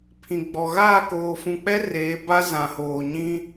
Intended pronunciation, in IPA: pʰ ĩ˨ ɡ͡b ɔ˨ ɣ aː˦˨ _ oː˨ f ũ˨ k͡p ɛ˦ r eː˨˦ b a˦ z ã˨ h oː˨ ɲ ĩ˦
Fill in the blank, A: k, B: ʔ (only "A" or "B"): A